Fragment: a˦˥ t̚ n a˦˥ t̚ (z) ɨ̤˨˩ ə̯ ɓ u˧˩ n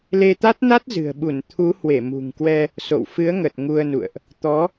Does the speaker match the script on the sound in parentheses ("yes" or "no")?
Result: yes